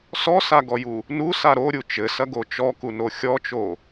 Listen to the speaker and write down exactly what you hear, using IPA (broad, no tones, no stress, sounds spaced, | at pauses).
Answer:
s ɔ s a ɡ ɔ j u | n u s a ɾ o ɾʲ u t͡ʃ ɘ s ɐ ɡ o t͡ʃ ɔ k u n o xʲ ɔ t͡ʃ o